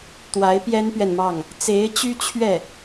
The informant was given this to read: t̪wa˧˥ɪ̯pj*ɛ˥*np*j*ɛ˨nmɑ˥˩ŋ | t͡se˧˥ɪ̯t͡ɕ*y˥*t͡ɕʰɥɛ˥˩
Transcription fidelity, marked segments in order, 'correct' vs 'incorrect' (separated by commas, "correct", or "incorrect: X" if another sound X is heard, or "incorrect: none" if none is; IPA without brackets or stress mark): correct, incorrect: ɥ, correct